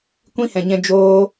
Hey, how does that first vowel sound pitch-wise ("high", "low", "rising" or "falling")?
high